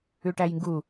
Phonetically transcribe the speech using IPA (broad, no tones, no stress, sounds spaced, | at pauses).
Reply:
ʉ ʈ æ j ŋ ɡ u